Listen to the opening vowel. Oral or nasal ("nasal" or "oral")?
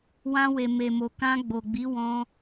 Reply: nasal